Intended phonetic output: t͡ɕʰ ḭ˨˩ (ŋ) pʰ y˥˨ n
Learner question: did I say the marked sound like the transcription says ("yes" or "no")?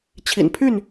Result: no